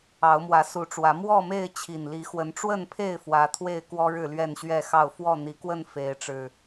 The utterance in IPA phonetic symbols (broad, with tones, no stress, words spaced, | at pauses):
ɑ˨˦ʊ̯mwä˨˦su˨˦ʈ͡ʂwä˨˦ mwɔ˥˨me˥˨ɪ̯ t͡ɕʰi˨˩nli˨˦xwə˨˦n ʈ͡ʂwə˥˨npʰe˥˨ɪ̯ fwä˨˦t̪ʰwe˥˨ɪ̯kwɔ˦ ɻɻ̩˥˨lɥɛ˥˨nɕɥɛ˥˨ xɑ˥˨ʊ̯ fwɔ˥˨n̪i˨˦kwə˥˨n fe˨˦ɪ̯ʈ͡ʂɻ̩˨˩